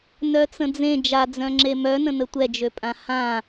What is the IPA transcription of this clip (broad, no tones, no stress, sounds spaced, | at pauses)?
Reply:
n œ t͡s ə̃ d͡z ẽ d͡ʒ a d͡z œ̃ ŋ͡ǁ e m œ n ə̃ n ə tʷ ɛ d͡ʒ ø pʼ ã h ã